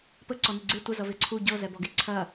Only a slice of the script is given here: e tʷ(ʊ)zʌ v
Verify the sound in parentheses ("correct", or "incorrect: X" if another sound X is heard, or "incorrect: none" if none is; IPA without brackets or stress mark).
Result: incorrect: ə